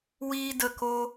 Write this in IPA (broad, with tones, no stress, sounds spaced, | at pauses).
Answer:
w iː˦ d ə˦˨ k o˦